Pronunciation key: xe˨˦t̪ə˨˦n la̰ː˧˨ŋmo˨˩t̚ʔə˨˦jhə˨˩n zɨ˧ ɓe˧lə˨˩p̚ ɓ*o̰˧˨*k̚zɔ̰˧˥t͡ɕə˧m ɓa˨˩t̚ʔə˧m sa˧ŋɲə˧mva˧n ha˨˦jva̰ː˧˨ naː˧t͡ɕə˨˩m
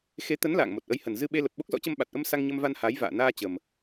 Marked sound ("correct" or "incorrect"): incorrect